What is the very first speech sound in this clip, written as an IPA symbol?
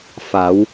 f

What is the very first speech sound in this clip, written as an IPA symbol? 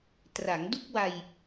t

